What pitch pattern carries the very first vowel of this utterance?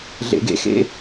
low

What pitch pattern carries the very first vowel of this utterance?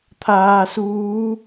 low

